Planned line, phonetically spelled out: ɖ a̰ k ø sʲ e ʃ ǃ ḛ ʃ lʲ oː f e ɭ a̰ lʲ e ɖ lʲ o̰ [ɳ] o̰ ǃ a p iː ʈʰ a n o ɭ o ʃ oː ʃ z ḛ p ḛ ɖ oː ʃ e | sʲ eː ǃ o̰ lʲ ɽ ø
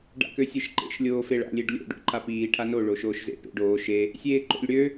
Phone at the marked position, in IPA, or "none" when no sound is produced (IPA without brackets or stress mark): ɖ